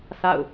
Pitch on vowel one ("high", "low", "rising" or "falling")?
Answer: falling